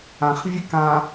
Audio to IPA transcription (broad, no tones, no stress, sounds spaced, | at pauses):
ã χ vʲ e k ã